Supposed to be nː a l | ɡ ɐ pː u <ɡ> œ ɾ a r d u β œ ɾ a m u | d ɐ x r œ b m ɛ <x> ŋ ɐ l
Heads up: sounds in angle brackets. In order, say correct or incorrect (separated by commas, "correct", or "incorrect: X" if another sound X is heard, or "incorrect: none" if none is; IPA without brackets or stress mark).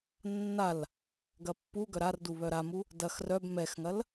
correct, correct